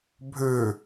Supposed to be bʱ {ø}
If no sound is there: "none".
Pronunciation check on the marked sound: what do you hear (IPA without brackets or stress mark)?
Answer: ø